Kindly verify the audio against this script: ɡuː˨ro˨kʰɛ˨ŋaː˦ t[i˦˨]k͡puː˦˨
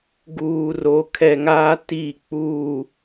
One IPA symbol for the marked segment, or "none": i˦˨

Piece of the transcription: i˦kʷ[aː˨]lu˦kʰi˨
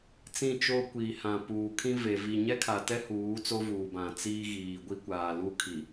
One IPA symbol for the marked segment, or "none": aː˨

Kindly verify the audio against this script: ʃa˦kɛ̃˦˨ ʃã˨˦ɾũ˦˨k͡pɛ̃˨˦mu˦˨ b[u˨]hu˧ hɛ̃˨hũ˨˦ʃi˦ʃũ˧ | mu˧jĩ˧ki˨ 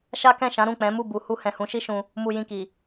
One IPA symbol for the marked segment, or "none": u˨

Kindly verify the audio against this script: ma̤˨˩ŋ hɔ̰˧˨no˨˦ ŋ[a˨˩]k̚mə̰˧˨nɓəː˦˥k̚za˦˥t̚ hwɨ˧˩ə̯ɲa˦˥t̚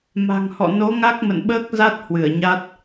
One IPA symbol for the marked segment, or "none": a˦˥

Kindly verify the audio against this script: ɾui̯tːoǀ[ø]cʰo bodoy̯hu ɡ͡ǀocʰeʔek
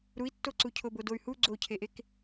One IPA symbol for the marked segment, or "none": u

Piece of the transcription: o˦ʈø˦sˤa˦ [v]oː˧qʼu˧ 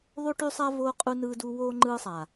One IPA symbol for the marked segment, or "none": v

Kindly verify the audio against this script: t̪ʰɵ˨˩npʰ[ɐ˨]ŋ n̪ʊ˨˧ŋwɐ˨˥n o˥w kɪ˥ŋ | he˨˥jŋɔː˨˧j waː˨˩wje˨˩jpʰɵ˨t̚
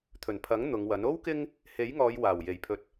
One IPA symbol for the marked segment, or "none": ɐ˨˥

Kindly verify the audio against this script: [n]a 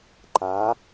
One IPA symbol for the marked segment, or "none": ǃ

